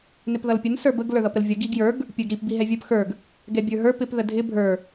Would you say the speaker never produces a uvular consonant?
yes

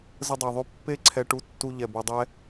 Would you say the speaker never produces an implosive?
yes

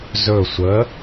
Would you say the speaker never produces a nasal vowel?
yes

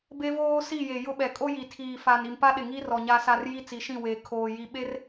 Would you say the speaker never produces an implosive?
no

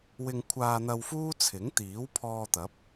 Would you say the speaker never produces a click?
yes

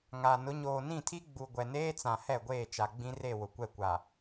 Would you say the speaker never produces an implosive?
yes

